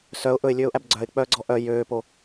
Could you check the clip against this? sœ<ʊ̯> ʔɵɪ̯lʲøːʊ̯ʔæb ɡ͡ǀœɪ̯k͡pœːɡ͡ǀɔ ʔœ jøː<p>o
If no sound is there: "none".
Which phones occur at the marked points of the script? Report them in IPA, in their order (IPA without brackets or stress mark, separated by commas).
ʊ̯, p